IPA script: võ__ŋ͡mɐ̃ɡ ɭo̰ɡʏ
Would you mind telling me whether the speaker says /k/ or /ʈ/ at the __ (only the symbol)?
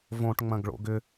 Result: ʈ